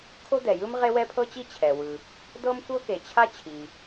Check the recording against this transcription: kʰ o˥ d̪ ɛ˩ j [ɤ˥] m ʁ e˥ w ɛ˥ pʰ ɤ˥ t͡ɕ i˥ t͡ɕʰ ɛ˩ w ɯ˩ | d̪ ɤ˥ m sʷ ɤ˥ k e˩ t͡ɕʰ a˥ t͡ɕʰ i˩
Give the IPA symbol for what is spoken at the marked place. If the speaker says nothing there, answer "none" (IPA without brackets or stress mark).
ɯ˥